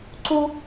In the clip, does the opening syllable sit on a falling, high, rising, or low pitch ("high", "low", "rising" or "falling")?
high